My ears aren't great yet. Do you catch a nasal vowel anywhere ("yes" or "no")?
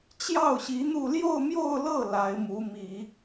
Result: no